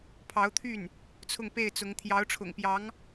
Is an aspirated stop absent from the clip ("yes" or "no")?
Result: no